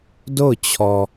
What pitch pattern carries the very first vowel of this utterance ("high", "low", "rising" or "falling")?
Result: falling